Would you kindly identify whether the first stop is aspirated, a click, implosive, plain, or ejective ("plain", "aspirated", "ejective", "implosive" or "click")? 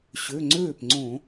click